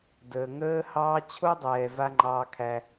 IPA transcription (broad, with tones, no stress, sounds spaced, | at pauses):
d əː˨ ŋ əː˦ h ɑː˧ t͡ɕʰ o˦ dˤ ɛː˨ v a˧ ŋ͡ǃ ɑː˧ kʰ æ˧